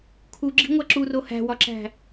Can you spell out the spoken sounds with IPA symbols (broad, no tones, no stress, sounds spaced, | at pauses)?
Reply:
kʰ u ɡ͡ǁ i̤ ŋʷ æ ǁ u r o h æ̤ w ɒ ǁ æ̤